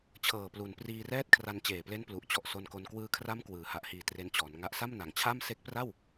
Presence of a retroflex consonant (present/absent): absent